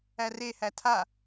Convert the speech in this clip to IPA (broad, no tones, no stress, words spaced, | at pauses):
ærehæ tʰa